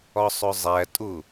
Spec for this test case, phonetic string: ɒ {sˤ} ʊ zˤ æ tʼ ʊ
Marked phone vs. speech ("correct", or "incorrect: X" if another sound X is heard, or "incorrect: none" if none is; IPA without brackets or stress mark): correct